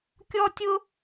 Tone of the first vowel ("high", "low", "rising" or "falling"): high